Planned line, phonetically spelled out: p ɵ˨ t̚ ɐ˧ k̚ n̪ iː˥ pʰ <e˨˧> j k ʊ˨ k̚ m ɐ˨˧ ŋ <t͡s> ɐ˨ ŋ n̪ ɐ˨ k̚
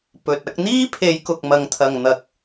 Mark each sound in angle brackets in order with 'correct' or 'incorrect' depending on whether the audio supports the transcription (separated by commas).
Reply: correct, incorrect